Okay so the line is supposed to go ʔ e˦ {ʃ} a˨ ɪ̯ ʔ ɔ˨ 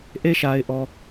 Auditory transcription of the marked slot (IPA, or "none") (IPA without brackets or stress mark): ʃ